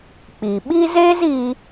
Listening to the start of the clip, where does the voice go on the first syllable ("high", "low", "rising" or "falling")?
low